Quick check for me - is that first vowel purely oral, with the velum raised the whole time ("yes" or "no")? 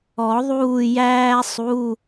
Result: yes